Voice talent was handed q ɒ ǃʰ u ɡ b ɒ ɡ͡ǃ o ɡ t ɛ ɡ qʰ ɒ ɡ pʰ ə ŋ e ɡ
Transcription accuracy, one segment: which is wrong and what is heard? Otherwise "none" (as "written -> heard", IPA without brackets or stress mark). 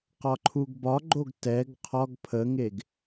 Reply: none